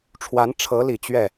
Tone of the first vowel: rising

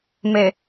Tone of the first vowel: low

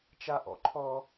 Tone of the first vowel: high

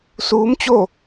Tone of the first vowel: rising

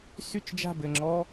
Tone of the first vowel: falling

